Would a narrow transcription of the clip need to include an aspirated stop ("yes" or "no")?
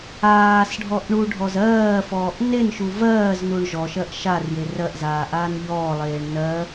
no